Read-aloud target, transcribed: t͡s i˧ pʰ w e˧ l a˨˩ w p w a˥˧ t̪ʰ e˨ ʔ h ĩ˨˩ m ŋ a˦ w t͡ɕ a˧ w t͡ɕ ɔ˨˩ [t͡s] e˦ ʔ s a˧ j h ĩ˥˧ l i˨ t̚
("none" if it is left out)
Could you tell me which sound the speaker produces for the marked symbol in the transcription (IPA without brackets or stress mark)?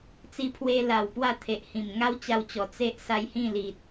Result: t͡s